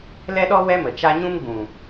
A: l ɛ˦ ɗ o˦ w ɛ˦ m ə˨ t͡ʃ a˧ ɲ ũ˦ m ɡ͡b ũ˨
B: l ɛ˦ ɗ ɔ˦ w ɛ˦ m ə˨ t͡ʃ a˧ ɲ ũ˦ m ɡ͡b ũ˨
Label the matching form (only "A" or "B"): B